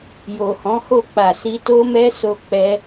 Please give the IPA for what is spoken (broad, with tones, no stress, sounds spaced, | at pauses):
j o˨ h ɔ̃˨˦ h o˦˨ k͡p a˨ s i˧ t o˦ m ɛ˦ s o˦ k͡p ɛ˦